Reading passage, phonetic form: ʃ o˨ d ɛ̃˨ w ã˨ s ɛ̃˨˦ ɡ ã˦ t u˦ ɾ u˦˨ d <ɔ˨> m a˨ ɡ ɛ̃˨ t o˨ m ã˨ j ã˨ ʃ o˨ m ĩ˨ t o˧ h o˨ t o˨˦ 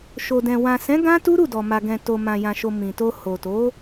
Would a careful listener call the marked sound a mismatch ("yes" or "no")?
no